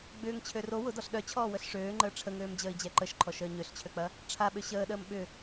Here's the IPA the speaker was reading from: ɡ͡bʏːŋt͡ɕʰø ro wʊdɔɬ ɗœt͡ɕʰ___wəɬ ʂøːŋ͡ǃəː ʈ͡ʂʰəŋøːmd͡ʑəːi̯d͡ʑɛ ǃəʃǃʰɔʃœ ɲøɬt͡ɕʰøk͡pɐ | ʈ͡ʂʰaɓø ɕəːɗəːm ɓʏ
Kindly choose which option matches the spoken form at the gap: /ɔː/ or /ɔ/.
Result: ɔː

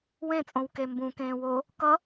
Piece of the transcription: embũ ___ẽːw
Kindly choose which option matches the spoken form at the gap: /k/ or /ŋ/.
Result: k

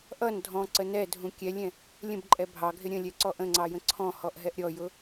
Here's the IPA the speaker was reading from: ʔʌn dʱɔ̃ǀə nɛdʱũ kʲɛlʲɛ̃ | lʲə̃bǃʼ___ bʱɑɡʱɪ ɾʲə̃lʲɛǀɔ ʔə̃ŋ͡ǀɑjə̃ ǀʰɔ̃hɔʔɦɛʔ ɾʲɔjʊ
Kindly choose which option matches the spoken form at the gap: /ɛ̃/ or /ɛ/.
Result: ɛ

